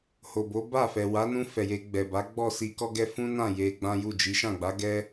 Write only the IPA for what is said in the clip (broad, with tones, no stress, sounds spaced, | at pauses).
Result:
h o˨ b o˨˦ b a˦˨ f ɛ˨ w a˨˦ n ũ˧ f ɛ˨ j e˧ ɡ͡b ɛ˨ b a˨˦ ɡ͡b ɔ˦˨ s i˧ k ɔ˦ ɡ ɛ˦ f ũ˦ n ã˦˨ j e˧ ɡ͡b ã˦ j u˦˨ d͡ʒ i˨˦ ʃ ã˦˨ ɡ͡b a˨˦ ɡ ɛ˦